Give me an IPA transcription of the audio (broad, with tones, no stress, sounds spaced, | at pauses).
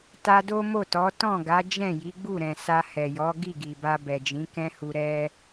t a˧ d o˦ m o˦˨ t ɔ˨˦ t ɔ̃˦˨ ɡ a˨˦ d͡ʒ ɛ̃˦˨ j i˨˦ ɡ͡b u˦˨ ɾ ɛ̃˨ s a˧ h ɛ˨ j ɔ˨˦ ɡ i˦˨ ɡ i˨ b a˧ b ɛ˨ d͡ʒ ĩ˨˦ k ɛ̃˦ h u˧ ɾ ɛ˦